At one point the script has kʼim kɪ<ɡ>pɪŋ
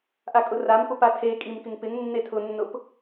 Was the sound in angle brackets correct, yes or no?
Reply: no